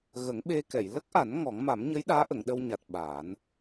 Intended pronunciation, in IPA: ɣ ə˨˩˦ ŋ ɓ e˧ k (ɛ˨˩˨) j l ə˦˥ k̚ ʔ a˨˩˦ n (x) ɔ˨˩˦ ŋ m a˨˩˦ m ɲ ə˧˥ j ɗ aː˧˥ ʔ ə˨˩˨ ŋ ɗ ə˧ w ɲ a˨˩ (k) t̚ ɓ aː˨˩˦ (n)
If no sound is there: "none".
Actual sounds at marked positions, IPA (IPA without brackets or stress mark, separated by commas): ɛ˨˩˨, ŋ, none, n